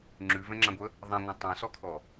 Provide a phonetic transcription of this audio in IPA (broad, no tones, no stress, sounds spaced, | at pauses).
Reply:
ŋ͡ǁ ʉ v ɛ̃ ŋ͡ǁ ã ɡʷ ə | ðˤ ã ŋʷ ã tˤ ɛ̃ s ɔ kʰ ɔ